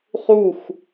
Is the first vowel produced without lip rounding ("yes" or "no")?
no